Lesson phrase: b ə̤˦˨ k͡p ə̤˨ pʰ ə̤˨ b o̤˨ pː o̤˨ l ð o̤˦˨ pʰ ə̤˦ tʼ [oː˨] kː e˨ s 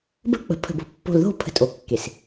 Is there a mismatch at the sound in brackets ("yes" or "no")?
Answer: yes